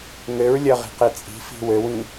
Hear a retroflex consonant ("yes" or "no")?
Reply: no